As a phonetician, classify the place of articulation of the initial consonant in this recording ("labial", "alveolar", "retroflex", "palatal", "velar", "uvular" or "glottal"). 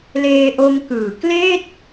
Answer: alveolar